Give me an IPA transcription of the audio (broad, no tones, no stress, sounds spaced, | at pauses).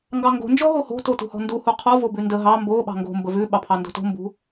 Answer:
ŋ ɡ ɑ ŋ ɡ o̤ n d͡ʒ ɔ ɦ o h o̤ t o t ṳ h ɔ̤ n d u h u qʰ ɔ v o b ʉ n d ə ɦ ɑ m b o ɓ ɑ̤ ŋ ɡ o̤ m b ə v ʉ ɓ ɑ pʰ ɑ n d o̤ t o̤ m b ṳ